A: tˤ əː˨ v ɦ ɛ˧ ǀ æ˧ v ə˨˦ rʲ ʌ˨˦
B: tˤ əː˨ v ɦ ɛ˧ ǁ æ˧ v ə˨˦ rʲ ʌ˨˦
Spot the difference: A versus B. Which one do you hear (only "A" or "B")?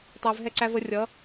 A